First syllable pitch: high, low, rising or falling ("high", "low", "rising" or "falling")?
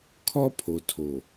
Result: high